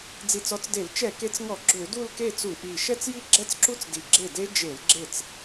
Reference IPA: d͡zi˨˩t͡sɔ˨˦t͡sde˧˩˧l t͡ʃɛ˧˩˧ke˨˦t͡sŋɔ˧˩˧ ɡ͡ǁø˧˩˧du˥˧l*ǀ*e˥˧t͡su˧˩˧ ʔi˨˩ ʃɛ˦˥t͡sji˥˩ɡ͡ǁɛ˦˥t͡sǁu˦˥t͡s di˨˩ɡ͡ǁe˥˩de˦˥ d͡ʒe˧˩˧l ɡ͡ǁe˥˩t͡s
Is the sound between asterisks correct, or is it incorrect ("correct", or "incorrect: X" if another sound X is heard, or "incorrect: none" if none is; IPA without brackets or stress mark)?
incorrect: k